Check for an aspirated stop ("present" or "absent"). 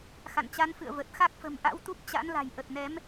absent